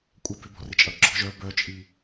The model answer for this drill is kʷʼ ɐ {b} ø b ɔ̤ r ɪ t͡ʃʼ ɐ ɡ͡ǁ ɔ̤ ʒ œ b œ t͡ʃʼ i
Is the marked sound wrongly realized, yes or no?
no